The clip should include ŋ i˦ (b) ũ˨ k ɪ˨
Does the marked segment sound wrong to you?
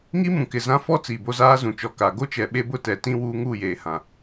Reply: yes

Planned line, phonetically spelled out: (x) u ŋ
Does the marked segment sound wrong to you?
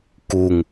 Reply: yes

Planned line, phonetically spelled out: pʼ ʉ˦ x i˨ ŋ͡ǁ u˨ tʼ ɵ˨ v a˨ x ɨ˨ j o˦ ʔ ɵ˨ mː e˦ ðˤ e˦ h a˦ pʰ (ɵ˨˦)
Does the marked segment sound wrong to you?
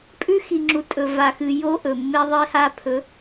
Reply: no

